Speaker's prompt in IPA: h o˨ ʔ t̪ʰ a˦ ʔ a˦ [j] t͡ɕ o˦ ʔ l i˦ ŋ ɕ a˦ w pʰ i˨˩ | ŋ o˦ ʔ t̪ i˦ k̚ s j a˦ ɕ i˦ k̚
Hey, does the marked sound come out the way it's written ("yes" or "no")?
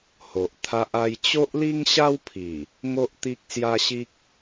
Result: yes